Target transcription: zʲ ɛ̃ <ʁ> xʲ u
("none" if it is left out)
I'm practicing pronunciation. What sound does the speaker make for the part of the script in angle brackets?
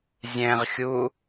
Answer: ʁ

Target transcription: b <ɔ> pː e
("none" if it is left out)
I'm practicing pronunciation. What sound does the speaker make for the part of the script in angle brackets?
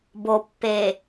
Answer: o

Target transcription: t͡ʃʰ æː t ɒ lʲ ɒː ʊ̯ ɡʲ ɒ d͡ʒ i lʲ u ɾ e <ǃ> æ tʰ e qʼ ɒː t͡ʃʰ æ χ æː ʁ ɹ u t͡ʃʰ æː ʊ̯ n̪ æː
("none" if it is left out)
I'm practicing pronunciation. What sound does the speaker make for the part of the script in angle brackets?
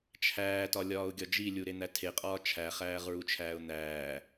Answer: n̪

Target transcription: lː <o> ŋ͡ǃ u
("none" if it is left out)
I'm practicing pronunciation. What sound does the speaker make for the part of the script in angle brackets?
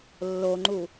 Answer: o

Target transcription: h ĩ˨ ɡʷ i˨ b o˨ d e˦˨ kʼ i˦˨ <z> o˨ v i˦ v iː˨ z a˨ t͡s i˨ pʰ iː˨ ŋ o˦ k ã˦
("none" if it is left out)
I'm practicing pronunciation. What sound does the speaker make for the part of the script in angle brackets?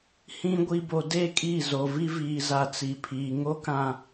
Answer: z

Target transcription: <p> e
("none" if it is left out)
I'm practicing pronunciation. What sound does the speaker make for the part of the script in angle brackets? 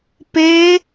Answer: p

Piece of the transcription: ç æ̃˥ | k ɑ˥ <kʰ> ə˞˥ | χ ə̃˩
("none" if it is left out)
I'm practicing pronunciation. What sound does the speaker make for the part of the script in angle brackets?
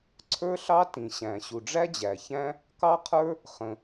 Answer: qʰ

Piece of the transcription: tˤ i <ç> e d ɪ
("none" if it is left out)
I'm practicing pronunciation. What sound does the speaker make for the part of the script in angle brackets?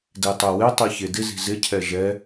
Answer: ç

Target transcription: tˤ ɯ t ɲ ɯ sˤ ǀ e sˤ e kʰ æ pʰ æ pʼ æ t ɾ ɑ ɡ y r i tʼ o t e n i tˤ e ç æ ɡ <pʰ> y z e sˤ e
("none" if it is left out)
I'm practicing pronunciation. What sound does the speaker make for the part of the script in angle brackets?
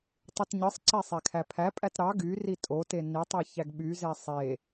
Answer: ɓ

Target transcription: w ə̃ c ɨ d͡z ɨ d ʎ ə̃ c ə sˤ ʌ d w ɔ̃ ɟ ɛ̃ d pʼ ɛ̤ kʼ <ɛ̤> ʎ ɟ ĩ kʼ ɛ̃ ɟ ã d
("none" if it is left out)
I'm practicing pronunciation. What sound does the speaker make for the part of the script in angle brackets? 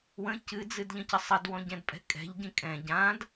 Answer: ɛ̤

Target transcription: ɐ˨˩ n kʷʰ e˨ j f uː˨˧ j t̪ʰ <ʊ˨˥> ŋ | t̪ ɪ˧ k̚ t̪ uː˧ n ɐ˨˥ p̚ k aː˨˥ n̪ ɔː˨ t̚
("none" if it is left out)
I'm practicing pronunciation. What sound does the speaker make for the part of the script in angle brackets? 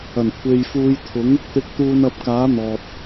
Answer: ʊ˨˥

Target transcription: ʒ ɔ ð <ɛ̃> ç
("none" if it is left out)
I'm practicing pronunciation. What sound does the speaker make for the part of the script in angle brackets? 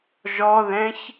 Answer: ɛ̃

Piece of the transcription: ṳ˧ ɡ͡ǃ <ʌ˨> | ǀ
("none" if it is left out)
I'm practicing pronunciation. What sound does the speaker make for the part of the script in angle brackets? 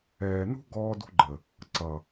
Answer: ə˨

